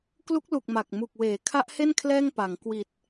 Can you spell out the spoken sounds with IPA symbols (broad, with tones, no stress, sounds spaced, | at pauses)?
k l u˦˥ k̚ l u˨˩ k̚ m a˨˩ k̚ m u˨˩ k̚ w eː˩˦ kʰ a˦˥ ʔ h e˥˩ n kʰ l ɛː˥˩ ŋ p a˩˦ ŋ k w i˨˩ t̚